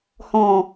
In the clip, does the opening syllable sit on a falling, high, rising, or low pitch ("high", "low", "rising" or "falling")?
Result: low